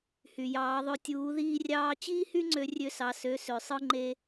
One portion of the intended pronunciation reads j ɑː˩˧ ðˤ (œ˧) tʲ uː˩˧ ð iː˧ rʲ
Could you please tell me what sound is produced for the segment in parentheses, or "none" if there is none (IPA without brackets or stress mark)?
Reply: ø˧